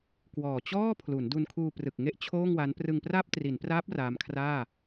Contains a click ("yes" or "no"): no